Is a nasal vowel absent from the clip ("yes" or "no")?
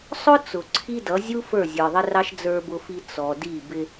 yes